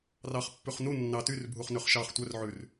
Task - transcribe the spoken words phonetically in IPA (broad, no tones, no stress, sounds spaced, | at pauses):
r ɑ χ pː ʉ χ n u nː ɑ t y r bʱ u χ n ø χ ʃ ɑ χ tʷ œ r ʕ ʉ r